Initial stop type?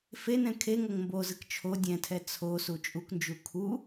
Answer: aspirated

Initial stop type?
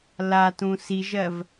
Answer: plain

